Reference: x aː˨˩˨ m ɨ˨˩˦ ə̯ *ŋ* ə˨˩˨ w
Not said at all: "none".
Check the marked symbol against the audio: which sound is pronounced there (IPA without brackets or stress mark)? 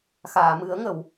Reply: ŋ